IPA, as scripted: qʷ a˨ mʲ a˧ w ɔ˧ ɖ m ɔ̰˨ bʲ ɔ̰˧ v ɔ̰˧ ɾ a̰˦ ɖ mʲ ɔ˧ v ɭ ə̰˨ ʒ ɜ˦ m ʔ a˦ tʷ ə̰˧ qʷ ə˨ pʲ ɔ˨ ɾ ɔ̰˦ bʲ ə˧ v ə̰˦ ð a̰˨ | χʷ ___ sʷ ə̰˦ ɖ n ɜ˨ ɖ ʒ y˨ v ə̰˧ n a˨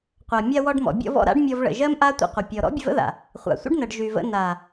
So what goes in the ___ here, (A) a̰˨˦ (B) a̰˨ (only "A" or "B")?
B